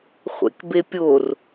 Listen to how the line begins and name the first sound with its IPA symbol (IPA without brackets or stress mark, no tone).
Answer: χʷ